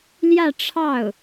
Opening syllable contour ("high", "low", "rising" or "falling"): falling